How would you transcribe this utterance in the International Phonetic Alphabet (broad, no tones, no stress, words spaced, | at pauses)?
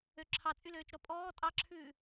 øǁʰɑ t͡sʼyløːt͡ʃɾɔpʼɔː tʼɑǁʰʉː